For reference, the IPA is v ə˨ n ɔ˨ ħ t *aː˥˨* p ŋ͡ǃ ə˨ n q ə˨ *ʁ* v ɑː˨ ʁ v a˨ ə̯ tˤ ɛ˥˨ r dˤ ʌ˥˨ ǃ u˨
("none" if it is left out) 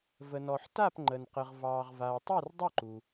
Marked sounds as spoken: a˥˨, ʁ

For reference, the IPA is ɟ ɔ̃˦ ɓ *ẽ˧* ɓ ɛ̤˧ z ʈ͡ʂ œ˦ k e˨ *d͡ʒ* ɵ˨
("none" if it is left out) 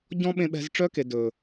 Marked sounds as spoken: ẽ˧, d

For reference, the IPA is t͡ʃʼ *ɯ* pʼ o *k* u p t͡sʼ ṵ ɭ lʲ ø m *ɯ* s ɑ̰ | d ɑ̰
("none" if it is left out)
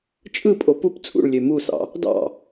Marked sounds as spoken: ɯ, p, u

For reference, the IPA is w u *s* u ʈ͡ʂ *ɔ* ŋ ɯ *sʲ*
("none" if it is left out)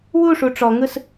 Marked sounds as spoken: ʂ, ɔ, s

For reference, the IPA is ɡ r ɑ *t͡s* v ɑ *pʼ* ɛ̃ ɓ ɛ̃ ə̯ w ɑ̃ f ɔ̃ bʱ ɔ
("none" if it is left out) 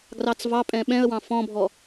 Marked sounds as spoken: t͡s, pʼ

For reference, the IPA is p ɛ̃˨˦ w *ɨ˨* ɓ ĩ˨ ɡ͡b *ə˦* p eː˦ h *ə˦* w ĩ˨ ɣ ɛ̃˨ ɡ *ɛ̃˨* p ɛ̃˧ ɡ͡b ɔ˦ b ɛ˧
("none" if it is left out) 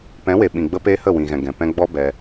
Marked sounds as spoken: e˨, ə˧, ə˦˨, ɛ̃˨

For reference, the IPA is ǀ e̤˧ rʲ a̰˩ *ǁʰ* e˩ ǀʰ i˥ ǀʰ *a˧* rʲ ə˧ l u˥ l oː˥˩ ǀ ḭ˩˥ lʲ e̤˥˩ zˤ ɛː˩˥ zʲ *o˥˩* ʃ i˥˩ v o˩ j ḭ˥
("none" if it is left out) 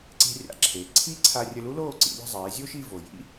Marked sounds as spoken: ǁʰ, a˧, o˥

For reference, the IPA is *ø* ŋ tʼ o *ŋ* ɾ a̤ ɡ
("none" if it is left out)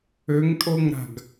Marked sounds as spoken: ø, ŋ

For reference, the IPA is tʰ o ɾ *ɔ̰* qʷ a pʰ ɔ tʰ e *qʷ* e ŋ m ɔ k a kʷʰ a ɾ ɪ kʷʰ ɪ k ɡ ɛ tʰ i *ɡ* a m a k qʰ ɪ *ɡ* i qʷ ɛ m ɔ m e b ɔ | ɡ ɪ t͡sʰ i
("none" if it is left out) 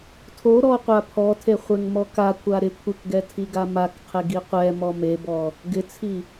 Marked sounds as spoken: ɔ, χʷ, ɡ, ɡ

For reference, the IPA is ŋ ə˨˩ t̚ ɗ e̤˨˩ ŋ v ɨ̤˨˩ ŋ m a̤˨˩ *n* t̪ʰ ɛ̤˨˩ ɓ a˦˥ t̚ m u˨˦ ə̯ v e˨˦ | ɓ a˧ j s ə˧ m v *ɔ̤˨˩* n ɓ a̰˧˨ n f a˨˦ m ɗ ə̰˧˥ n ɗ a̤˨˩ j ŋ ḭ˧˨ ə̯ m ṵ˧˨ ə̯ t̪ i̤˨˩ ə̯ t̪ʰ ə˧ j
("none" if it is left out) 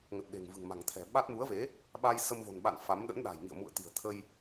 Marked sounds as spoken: ŋ, o̤˨˩

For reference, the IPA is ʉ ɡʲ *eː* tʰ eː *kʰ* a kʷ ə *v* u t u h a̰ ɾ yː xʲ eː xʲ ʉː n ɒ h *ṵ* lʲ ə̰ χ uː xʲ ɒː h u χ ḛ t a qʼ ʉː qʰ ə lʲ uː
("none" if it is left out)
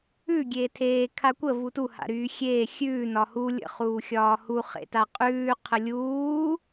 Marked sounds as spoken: eː, kʰ, v, u

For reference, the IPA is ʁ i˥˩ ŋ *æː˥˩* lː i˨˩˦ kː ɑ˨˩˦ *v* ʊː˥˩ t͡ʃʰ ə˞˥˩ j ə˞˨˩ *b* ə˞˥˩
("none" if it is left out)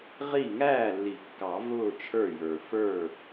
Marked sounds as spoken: æː˥˩, v, f

